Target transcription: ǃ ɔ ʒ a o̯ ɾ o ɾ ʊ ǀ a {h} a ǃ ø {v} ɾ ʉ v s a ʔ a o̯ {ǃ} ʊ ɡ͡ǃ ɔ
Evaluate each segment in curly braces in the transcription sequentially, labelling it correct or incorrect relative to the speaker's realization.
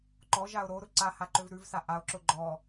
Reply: correct, correct, incorrect: ǁ

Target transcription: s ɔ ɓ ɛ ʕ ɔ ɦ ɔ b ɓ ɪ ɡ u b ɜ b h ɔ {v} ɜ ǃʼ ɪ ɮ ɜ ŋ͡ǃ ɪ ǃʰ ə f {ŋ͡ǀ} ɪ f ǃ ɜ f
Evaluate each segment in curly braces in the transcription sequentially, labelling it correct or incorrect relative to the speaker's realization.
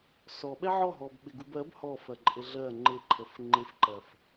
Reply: incorrect: f, incorrect: ŋ͡ǃ

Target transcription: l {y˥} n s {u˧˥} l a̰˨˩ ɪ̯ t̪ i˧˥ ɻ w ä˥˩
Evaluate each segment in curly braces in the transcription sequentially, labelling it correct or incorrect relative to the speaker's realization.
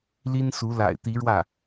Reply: incorrect: i˥, correct

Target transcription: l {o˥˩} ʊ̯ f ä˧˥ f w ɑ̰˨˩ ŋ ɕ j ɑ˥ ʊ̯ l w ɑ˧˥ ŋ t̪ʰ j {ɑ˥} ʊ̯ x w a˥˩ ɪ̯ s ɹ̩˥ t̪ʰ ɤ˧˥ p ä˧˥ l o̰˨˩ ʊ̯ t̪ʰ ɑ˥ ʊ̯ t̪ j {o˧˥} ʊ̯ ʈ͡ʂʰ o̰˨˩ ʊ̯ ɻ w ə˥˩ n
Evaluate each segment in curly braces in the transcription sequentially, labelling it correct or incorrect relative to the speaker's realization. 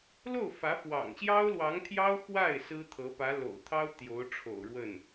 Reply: correct, correct, correct

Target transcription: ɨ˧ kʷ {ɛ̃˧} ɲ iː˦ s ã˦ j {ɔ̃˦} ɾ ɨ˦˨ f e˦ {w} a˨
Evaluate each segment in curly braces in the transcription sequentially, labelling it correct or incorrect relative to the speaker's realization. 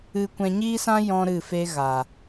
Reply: correct, correct, incorrect: ɣ

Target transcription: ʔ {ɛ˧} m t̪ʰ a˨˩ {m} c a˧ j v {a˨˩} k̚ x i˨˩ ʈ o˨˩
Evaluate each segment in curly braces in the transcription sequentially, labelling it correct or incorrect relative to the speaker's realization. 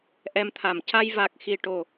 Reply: correct, correct, correct

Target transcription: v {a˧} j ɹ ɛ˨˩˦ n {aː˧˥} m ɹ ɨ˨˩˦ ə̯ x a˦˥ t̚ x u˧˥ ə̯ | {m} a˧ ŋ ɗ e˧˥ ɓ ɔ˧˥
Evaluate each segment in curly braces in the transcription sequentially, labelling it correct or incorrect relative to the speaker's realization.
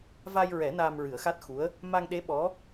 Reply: correct, incorrect: aː˧, correct

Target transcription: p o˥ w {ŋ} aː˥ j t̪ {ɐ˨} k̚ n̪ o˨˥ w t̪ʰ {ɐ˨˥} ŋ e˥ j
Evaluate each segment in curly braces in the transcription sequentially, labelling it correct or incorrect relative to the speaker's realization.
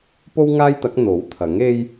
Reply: correct, incorrect: ɐ˨˥, correct

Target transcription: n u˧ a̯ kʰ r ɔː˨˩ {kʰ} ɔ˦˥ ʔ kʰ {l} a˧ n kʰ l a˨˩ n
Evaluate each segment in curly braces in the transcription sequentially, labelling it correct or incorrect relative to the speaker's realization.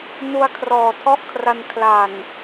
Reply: incorrect: tʰ, incorrect: r

